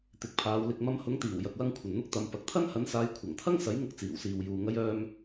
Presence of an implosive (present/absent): absent